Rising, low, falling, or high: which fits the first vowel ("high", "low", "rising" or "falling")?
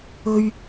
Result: high